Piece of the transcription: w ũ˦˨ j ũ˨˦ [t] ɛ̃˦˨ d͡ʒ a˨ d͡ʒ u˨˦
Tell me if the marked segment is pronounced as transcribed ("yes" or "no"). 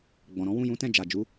yes